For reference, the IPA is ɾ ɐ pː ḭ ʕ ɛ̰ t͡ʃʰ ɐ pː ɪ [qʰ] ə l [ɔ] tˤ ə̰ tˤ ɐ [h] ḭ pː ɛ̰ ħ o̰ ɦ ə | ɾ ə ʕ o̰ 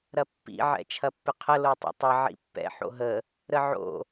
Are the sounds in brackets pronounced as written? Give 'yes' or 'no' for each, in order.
yes, no, no

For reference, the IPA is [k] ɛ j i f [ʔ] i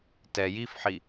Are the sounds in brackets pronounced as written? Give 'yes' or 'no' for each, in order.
no, no

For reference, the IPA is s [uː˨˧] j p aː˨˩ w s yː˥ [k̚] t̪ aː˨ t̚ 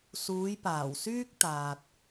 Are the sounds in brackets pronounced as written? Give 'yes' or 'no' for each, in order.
yes, yes

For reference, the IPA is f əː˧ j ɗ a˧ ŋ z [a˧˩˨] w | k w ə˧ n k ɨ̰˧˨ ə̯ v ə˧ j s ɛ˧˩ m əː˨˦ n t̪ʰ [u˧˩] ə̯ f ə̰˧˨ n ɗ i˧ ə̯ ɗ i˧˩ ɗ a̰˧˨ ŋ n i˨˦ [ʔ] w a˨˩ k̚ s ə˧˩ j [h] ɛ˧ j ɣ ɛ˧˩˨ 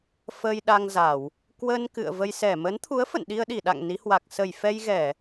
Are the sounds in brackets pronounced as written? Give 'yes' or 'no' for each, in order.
yes, no, no, no

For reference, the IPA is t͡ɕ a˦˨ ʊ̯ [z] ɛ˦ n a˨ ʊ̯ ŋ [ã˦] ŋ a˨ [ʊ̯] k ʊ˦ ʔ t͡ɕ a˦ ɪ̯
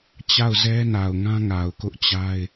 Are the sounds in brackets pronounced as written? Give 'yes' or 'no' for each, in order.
yes, yes, yes

